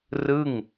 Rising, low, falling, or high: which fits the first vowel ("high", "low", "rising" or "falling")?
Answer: falling